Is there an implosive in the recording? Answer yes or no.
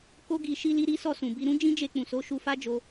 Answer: no